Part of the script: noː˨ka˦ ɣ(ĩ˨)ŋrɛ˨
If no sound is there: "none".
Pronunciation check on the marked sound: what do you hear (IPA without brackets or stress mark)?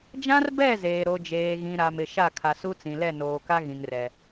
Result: ĩ˨